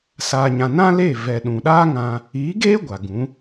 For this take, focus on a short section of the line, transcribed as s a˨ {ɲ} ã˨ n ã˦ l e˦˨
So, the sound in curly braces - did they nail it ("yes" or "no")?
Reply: yes